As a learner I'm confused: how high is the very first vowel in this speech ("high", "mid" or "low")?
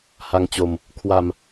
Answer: low